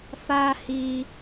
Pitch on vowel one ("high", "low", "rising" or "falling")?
high